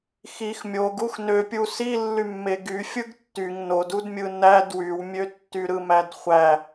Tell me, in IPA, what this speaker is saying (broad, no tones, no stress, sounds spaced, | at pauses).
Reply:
x i x mʲ o ɡ u x n ø pʲ u s i lː y mː e ɡ y fʲ ɯ ɡ tː y ŋ n o d u d mʲ ɯ n æ d w y w mʲ ø tː y ɾ ɯ m æ d χʷ æ